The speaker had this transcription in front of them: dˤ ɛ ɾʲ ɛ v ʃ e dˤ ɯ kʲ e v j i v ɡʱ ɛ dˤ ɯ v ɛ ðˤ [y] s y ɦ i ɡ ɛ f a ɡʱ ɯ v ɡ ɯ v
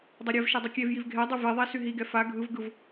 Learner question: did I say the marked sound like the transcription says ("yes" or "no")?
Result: no